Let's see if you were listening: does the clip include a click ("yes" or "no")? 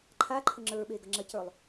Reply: yes